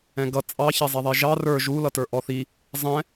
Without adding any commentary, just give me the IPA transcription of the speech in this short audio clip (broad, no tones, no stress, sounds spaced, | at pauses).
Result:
ɛ̃ ɡ ʌ t͡sʼ ɑ ç ɛ zˤ ɛ ðˤ i ʒ ɑ r ə˞ ʒ u l ʌ t ə˞ ʔ ɔ θ i | zˤ ɛ̃